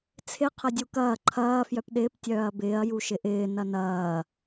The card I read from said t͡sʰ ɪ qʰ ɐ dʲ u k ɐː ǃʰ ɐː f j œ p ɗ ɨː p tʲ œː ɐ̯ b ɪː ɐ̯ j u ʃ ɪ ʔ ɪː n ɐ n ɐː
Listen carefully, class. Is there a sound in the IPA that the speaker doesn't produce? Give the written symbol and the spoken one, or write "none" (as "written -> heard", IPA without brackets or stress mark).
ɨː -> ɪː